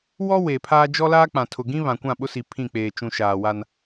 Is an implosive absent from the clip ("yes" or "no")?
no